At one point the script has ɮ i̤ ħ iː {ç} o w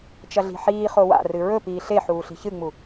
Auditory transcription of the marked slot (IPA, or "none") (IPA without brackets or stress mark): χ